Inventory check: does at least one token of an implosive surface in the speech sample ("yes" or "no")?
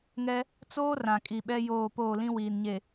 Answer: yes